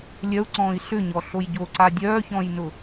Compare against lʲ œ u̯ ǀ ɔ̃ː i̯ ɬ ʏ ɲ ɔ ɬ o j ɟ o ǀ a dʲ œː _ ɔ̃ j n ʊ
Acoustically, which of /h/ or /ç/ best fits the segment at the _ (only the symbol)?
ç